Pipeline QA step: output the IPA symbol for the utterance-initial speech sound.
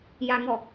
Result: j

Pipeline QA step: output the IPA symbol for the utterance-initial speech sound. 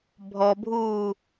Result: bʱ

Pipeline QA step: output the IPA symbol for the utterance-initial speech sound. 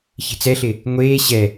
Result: ç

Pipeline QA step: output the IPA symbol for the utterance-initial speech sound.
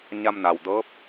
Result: ɲ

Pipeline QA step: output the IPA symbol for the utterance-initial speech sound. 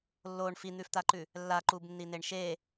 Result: lː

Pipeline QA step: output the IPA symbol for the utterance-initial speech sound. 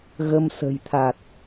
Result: ɣ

